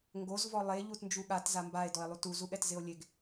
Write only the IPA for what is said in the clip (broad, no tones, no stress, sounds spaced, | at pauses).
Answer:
ŋ ɡ o z v ɔ lˠ e ʎ u t n d͡ʒ u ɠ a t z a m b a e̯ d ɔ e̯ lˠ u t u z u ɠ ɛ t z ɪ o̯ lʲ e ɡ